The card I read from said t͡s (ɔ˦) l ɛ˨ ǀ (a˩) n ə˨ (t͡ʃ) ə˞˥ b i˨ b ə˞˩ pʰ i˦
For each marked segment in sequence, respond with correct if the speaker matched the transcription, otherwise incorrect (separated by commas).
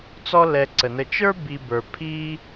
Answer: correct, incorrect, correct